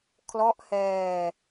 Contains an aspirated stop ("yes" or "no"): yes